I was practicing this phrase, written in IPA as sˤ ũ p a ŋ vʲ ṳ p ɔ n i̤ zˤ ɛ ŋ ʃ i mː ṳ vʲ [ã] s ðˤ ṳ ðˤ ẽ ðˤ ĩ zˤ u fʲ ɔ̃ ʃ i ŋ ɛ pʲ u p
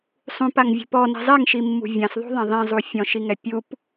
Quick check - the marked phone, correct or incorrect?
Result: correct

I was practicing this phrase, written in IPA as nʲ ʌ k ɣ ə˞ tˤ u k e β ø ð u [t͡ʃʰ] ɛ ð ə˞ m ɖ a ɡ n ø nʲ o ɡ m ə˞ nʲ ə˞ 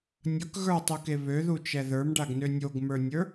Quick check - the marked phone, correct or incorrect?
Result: incorrect: t͡ʃ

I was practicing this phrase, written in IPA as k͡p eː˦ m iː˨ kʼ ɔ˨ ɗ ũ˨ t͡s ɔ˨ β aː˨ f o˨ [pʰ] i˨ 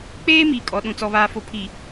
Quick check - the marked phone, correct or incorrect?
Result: correct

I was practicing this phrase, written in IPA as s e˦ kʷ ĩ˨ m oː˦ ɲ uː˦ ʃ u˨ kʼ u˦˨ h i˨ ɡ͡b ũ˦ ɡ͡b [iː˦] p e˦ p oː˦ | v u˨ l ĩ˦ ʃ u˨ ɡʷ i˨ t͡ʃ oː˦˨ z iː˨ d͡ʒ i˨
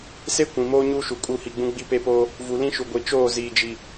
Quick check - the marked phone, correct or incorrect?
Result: incorrect: i˦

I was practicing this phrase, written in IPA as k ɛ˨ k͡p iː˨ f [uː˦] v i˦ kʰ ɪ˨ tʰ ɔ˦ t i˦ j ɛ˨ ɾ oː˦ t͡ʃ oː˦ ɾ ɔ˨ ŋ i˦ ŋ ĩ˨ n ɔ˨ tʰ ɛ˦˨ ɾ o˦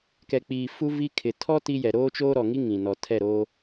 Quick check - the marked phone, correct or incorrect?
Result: incorrect: u˦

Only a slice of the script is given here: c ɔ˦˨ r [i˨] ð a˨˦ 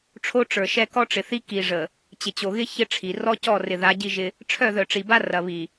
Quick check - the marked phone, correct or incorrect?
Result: incorrect: ɪ˨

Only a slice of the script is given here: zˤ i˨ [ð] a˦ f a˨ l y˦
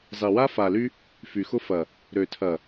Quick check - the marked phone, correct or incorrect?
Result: incorrect: w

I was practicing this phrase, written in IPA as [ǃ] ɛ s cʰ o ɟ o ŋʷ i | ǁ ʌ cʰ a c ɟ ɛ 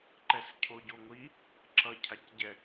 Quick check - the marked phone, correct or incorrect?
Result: correct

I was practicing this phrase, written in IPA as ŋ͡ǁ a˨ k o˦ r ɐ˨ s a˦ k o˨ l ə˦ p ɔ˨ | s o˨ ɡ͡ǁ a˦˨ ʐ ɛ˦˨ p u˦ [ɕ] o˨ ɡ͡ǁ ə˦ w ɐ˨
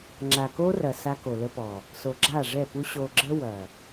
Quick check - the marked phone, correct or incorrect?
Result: correct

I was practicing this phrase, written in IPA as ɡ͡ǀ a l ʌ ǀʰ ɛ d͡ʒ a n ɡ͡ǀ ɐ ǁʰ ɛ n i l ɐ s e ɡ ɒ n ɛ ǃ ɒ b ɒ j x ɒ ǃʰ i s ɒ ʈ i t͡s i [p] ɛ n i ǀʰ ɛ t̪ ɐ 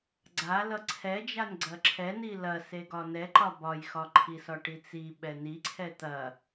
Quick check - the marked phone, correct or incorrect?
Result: incorrect: ɓ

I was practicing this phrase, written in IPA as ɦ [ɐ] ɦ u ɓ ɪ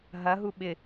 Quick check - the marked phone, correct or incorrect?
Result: correct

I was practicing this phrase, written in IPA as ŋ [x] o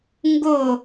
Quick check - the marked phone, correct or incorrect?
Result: incorrect: ɡ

